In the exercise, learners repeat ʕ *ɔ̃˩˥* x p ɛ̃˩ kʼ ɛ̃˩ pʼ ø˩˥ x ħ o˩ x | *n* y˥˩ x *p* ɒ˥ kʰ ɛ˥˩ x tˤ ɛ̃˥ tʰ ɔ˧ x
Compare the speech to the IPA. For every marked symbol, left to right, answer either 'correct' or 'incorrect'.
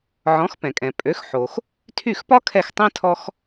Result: correct, incorrect: tʰ, correct

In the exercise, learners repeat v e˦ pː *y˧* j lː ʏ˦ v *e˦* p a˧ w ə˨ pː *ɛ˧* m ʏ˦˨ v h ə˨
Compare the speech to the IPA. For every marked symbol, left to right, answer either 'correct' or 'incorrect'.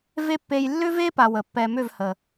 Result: incorrect: e˧, correct, correct

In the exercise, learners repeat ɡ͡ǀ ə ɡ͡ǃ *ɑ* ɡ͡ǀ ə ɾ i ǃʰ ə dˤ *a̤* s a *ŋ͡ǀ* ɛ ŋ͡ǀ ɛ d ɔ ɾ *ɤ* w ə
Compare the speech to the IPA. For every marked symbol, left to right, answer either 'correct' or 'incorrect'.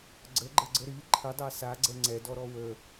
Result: incorrect: ə, incorrect: a, incorrect: ɡ͡ǀ, incorrect: ɔ

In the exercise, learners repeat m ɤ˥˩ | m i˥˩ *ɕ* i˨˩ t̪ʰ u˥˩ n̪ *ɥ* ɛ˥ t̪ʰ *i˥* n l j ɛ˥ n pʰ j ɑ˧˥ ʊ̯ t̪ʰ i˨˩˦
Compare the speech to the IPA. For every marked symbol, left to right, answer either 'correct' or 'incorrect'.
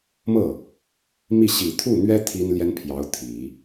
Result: correct, correct, correct

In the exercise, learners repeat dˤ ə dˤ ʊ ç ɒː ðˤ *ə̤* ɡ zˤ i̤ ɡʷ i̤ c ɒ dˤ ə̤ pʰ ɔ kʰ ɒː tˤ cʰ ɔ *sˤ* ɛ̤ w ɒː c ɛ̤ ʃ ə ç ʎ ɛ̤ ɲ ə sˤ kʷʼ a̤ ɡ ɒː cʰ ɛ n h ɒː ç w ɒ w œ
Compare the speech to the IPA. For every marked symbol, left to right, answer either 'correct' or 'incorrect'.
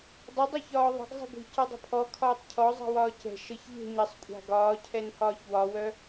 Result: correct, incorrect: zˤ

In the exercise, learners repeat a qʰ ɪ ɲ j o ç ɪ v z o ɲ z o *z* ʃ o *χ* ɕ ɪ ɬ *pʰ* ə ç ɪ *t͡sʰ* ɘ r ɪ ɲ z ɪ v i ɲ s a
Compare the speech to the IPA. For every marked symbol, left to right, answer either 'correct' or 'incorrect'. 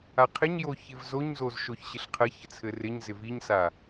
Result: correct, incorrect: ç, incorrect: qʰ, correct

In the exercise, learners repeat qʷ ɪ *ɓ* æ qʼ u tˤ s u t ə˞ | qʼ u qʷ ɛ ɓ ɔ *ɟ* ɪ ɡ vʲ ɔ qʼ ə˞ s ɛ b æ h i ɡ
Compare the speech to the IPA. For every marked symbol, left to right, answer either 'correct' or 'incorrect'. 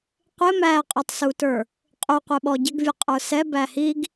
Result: incorrect: m, correct

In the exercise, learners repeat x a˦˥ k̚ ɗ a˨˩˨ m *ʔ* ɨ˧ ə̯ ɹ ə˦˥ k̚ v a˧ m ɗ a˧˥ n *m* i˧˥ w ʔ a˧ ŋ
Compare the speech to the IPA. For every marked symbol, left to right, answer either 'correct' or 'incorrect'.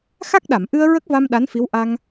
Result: correct, incorrect: f

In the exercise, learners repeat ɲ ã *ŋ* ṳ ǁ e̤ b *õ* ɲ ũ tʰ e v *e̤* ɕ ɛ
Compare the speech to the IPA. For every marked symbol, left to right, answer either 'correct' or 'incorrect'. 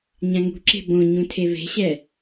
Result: correct, correct, correct

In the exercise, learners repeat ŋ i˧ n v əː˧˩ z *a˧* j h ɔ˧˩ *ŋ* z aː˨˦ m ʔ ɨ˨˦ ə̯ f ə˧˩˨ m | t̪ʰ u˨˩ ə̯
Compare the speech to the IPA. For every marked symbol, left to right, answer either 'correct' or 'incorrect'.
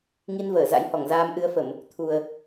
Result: incorrect: a̰˧˥, correct

